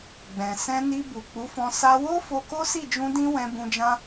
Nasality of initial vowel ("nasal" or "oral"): nasal